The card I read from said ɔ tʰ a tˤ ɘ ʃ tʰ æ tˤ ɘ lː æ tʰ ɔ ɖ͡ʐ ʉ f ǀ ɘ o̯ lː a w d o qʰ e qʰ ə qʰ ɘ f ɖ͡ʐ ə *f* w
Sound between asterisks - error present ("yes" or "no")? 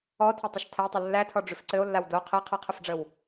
yes